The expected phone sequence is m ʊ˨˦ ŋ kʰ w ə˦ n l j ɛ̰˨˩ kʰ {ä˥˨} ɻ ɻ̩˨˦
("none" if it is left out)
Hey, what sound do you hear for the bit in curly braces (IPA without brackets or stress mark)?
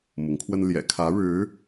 ä˨˦